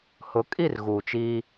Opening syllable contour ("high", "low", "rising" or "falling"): rising